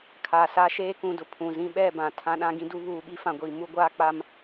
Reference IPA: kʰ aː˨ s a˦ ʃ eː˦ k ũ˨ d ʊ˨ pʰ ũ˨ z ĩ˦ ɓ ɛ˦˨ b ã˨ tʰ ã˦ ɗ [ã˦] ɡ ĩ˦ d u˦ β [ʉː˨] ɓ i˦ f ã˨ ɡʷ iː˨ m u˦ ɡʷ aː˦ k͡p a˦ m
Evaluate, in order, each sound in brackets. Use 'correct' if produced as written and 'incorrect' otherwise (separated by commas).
correct, incorrect